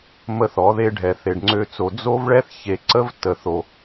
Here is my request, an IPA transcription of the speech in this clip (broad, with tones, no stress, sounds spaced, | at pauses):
m ə˦ θ ɔ˨˦ ð e˦ ɖʱ ɛ˨ θ e˨ ɖ ŋ͡ǀ ø˦ t͡s o˨ d͡z o˦ v ɭ ɛ˦ θ ç e˨ ǀ ə˦ v t ə˨ θ o˨